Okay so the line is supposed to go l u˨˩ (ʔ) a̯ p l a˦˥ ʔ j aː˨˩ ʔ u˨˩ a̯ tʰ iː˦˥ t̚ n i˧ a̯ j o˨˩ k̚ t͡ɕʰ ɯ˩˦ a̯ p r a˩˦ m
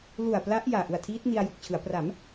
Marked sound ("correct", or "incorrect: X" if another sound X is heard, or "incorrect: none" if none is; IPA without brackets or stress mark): incorrect: none